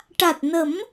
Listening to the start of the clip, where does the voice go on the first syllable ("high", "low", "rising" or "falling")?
low